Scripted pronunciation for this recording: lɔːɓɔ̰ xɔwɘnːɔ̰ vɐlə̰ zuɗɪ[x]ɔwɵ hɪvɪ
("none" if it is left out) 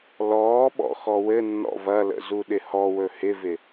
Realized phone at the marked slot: h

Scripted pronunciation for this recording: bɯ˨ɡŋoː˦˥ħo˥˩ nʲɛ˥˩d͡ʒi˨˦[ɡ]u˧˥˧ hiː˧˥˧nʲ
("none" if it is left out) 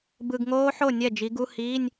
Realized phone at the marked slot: ɡ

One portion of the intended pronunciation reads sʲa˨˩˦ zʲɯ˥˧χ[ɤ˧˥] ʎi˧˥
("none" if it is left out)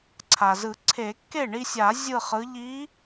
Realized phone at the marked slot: ɯ˧˥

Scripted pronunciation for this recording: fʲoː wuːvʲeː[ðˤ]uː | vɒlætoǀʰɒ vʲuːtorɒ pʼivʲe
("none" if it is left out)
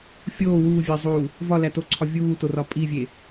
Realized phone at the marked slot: zˤ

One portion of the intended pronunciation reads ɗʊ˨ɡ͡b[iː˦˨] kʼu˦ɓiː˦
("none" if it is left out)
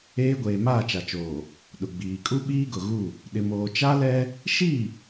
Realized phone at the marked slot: iː˨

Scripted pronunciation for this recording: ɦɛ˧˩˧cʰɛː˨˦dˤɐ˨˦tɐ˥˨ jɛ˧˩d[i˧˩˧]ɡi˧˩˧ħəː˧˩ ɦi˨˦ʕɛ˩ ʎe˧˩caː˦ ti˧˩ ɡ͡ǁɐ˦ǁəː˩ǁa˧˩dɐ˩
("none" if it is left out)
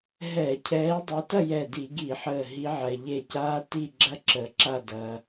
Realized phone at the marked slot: i˧˩˧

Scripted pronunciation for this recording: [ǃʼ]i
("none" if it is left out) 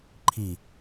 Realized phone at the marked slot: ǃʰ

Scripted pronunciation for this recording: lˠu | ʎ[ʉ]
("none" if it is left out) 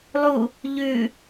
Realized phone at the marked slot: ʉ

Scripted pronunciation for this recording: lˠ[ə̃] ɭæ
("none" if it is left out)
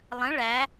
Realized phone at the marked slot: ə̃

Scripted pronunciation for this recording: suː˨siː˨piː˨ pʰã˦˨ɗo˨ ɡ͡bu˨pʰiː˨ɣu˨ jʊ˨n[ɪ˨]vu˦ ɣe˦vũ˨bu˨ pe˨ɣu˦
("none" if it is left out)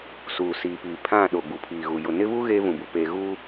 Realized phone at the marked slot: ɪ˦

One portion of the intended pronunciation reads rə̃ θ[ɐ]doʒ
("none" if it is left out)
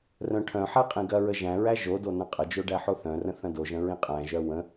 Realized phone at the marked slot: ɐ̃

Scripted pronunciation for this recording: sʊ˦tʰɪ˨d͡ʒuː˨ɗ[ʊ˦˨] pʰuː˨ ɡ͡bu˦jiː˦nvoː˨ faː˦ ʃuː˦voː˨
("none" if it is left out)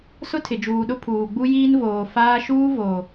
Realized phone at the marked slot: ʊ˦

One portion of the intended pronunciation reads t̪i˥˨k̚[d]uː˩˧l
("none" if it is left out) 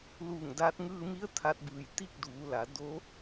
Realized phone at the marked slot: d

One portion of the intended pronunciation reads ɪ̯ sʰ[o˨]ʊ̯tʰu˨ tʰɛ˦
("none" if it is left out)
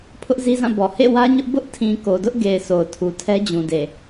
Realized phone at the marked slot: o˨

